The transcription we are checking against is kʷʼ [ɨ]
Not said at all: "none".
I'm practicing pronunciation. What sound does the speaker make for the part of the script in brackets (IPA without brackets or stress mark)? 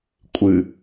ɨ